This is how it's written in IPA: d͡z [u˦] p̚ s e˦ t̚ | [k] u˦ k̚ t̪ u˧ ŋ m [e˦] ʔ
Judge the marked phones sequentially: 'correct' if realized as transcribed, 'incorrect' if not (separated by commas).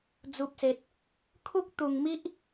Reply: correct, incorrect, incorrect